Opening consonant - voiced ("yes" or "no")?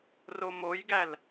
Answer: yes